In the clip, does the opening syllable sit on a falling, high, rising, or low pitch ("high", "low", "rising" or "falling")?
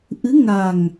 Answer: rising